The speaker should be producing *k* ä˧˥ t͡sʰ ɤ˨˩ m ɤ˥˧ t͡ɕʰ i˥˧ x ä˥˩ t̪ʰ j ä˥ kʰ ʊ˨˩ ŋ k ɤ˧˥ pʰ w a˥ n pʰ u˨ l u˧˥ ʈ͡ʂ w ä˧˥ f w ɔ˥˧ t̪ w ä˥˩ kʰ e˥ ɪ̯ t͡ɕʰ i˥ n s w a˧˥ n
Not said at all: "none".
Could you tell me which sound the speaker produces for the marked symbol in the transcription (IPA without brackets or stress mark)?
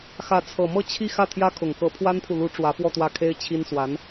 x